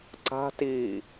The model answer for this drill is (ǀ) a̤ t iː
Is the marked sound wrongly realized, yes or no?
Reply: no